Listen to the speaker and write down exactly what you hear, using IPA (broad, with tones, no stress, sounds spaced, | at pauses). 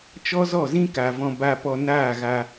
t͡ʃ ɔ˦ z ɔ˦˨ z ĩ˦ k a˨ v ɔ̃˧ b a˧ p ɔ˧ n aː˦˨ ɣ a˧